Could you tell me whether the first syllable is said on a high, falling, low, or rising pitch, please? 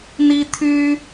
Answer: high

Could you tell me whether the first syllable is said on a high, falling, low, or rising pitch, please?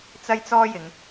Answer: high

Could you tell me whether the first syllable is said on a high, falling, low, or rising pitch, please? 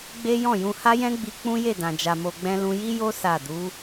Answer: high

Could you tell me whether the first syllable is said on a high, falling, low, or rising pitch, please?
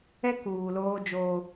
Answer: high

